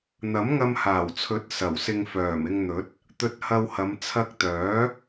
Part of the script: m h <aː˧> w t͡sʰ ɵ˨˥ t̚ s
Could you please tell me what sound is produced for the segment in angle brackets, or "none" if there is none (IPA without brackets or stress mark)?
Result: aː˨˩